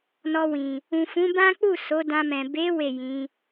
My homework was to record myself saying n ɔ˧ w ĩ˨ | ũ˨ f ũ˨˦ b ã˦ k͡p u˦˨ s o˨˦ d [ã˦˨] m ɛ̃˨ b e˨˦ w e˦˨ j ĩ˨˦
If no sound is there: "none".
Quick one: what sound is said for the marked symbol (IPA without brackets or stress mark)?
ã˧